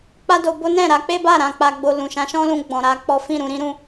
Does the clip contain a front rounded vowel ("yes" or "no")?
no